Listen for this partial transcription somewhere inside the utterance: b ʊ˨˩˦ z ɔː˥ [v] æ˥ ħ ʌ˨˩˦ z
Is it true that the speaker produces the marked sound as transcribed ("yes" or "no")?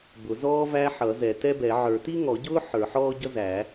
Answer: yes